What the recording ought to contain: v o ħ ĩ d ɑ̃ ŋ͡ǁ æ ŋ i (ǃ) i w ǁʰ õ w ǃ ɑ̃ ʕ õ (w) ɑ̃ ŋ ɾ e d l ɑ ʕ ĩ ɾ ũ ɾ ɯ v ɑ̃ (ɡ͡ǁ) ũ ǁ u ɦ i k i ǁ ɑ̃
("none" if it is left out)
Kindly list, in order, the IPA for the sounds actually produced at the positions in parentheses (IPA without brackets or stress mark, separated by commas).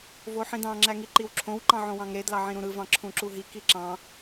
ǃ, w, ǁʰ